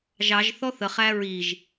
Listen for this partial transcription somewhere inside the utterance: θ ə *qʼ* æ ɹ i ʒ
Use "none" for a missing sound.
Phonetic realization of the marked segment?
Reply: χ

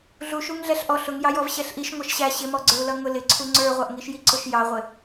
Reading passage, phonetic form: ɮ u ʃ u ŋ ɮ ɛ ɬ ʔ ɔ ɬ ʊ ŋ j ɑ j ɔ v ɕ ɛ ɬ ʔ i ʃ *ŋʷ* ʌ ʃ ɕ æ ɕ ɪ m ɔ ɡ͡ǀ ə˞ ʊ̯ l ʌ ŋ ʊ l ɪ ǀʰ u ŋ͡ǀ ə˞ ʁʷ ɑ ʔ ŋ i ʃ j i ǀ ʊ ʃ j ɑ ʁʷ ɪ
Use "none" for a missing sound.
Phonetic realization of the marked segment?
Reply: ŋʷ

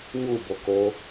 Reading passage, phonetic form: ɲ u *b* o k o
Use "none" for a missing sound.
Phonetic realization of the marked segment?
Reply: b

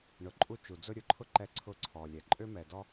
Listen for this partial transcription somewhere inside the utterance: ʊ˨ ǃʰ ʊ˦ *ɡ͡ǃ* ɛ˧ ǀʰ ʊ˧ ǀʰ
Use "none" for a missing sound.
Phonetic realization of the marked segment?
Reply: ǃ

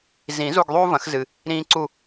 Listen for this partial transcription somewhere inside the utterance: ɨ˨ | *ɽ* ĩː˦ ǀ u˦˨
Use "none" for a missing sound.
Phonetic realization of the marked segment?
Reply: ɾ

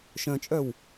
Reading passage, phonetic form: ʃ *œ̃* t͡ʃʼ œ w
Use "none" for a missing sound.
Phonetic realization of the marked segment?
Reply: œ̃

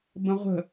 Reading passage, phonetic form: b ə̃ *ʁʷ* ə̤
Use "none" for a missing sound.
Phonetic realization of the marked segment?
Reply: ʁʷ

